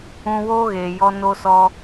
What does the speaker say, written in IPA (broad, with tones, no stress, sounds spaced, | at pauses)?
ũ˧ w oː˦ ɣ eː˨ j ɔ˧ n o˧ s ɔ˧